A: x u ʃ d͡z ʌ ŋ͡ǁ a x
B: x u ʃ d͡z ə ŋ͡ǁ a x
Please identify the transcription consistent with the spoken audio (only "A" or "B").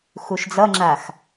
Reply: A